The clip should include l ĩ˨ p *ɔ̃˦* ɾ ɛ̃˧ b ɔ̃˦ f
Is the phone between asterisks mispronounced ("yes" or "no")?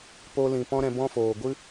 no